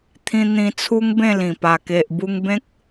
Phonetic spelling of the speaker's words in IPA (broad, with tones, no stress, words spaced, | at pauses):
t̪ʰĩ˧ n̪ĩ˧t͡sʰu˦ŋbẽ˥˧ lĩ˨˩ pa˨˩ke˨ʔ bu˧ŋbẽ˦k̚